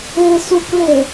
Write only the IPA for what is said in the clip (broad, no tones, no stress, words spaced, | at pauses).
e sukle